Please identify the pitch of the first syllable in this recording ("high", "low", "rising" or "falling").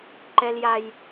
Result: high